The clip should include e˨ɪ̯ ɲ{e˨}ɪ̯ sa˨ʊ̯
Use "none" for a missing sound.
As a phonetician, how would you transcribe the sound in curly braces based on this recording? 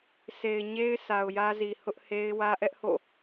e˦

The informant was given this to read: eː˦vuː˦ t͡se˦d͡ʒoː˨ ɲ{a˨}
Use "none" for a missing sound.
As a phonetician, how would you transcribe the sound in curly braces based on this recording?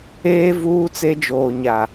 a˨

